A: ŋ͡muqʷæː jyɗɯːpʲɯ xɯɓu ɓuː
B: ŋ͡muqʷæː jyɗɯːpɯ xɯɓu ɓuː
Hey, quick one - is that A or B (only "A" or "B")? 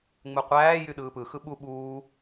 B